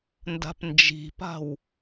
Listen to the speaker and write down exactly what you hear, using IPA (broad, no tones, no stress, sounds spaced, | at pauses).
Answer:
n d a̤ p n d͡ʒ i̤ p a̤ w